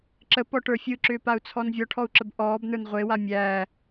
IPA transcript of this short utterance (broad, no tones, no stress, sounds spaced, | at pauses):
ǁ ə p ɔ ʈ ə˞ fʲ ɯ ǁ ʏː p a u̯ t͡sʰ ɔ n vʲ ɔ ʈʰ ɔ u̯ ǁ ə b ʔ ɔː b n ə˞ n ʁʷ e w a mʲ æː